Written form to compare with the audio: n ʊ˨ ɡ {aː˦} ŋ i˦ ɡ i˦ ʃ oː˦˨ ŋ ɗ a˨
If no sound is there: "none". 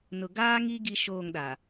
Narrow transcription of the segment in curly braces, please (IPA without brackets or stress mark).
aː˦